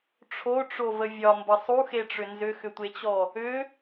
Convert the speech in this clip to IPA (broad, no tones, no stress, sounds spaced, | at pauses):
ʈ͡ʂʰ o ʈ͡ʂ o v ə vʲ ɒ m b ə sˤ u x e ʈ͡ʂ ʏ n z ʏ x ʏ tʷ e t͡ɕ ɔ | ʏ